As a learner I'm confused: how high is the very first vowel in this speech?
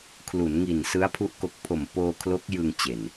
high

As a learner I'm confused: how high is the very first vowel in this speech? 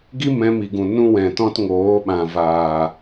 high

